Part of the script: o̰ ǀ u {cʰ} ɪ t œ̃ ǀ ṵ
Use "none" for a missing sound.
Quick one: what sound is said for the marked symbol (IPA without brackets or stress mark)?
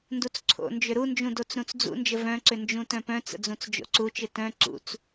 t͡ʃ